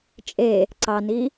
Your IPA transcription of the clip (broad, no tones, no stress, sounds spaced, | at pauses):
t͡ʃʼ e | ǀ ɑ n i